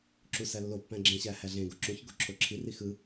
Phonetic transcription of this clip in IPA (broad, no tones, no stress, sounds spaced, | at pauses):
ǁ u s æ lː o pː æ̃ ɡ͡ǁ ẽ ɕ æ h æ ɮ ẽ ɡ o ǁ ũ ç ɡ o ǁʰ o ǁʰ i r i x ɯ